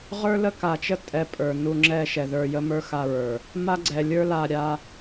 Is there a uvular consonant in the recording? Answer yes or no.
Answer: yes